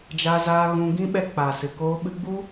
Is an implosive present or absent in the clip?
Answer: present